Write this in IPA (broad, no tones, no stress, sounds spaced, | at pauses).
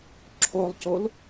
ǁʰ o lˠ c o l